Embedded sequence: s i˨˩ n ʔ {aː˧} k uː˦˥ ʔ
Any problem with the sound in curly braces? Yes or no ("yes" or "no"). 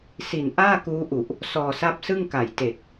yes